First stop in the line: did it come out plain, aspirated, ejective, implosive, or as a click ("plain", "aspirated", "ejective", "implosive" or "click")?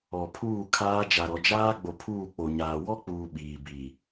aspirated